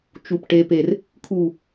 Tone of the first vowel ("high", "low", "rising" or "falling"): low